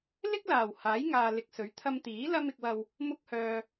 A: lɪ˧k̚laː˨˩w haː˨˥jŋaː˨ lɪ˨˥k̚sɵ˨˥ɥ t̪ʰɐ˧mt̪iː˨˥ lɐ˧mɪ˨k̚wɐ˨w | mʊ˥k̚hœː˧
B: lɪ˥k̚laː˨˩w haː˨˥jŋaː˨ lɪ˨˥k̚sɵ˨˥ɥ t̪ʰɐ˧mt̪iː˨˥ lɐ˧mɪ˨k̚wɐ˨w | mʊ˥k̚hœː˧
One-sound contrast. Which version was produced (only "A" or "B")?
B